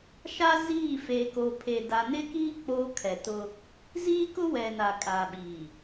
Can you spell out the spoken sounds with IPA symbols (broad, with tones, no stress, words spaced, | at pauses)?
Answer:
ʃa˦ziː˦˨ feː˨ko˨pʰe˨ da˨nɪ˦kiː˦ k͡poː˦kʰɛ˨tʊ˦ | ziː˦kʊ˦wɛ˨ na˨kʼaː˨ɓiː˨